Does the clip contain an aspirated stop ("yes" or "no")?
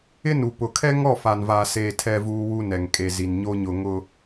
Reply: yes